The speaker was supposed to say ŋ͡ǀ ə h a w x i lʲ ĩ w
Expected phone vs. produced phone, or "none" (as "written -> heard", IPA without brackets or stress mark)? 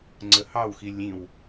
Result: a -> ɑ